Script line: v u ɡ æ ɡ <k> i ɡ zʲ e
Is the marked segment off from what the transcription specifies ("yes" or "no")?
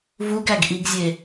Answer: yes